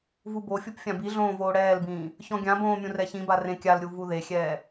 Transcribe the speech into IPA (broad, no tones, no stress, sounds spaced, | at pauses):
v u b o fʲ u p fʲ ã b i ɮ õː v oː ɽ ɛː l b ĩː | ç ɔ̃ ɡʲ ã b õː mʲ ũ r ɛ ç ĩ b a r ẽ kʲ a l ɾʲ u v u ð e xʲ ɛː